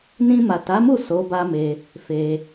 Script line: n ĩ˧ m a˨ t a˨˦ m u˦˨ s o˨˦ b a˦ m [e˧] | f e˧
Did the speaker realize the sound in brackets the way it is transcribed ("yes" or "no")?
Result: yes